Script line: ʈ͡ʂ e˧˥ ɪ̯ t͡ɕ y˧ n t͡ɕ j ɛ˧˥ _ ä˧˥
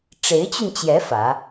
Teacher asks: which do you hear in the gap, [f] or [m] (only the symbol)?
f